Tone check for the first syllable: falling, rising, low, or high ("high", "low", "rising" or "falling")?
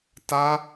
high